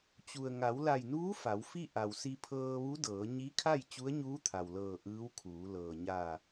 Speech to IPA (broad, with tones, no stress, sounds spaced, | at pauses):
t͡ɕ u˩ ə̯ ŋ a˩˧ w l a˧˩ j n uː˧˥ f a˩˧ w f i˥˨ ʔ a˩ w s i˧ pʰ ɤː˧ ʋ u˧˥ d ɤː˩˧ ɲ i˧˥ kʰ a˥˨ j t͡ɕ u˧˥ ə̯ ɲ uː˧˥ t̪ʰ a˩ w l ɤː˧˩ ʔ ɯː˧˥ w kʰ uː˩˧ l ɤː˩ ɲ aː˧˩